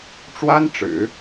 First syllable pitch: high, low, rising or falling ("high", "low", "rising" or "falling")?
high